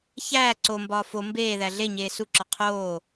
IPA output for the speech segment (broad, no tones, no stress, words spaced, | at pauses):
çæː ǀombɒː fo mbeːðæ ɮe ɲeːsuǁɒ qʰoː